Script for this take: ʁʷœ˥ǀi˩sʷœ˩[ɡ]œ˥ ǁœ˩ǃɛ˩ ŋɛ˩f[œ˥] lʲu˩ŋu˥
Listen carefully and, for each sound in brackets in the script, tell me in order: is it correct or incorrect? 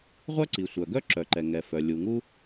correct, incorrect: œ˩

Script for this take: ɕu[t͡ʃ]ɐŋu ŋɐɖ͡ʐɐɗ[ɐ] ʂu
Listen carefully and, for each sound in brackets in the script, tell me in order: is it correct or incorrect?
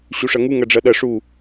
incorrect: ʂ, correct

